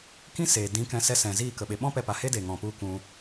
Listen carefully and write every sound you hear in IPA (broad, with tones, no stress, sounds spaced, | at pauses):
k ĩ˦ s eː˨ d ĩ˨˦ k ɛ̃˧ s ɛ˧ s ɛ̃˨ z iː˦˨ k ə˨ ɓ e˨ ɓ ɔ̃˦ p ɛ˦ p a˧ h e˦ d e˨ ŋ ɔ̃˨ p u˧ k ũ˧